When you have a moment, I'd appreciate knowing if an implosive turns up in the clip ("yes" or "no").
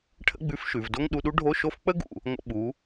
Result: yes